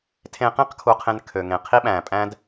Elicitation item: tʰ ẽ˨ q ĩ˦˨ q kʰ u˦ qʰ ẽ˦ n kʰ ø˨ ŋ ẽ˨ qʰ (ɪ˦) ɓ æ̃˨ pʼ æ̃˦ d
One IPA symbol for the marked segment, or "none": i˦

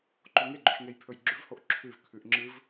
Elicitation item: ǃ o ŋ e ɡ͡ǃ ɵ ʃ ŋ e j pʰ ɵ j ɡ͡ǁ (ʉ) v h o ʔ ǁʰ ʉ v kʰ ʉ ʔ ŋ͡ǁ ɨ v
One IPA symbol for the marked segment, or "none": ʉ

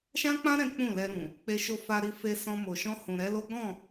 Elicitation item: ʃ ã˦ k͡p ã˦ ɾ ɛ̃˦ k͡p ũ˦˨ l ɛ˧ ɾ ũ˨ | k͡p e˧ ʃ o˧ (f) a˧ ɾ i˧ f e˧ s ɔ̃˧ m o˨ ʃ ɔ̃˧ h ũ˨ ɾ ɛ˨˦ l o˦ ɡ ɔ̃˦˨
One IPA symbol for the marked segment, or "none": f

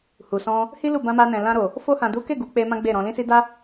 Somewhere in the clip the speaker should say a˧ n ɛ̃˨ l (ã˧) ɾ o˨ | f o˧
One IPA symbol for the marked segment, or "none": ã˧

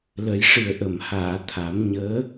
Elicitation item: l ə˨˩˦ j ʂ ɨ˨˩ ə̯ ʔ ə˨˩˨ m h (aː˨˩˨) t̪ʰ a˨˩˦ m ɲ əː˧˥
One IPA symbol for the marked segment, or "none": aː˨˩˨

